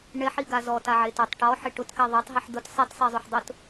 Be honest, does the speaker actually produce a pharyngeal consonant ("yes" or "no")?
yes